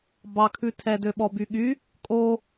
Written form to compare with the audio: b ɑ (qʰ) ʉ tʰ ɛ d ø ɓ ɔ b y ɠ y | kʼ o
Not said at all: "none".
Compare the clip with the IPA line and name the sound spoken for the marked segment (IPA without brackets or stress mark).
kʰ